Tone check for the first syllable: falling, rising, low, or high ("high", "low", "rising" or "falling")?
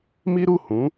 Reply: high